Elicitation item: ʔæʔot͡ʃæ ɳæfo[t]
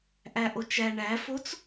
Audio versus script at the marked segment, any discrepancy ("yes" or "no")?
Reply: yes